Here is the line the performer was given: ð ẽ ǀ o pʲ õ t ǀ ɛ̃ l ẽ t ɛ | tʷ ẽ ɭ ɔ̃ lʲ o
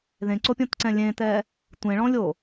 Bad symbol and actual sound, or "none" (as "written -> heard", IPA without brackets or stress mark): l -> lʲ